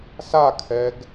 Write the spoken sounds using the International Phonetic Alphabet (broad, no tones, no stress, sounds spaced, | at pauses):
s a kʰ ɛ ɡ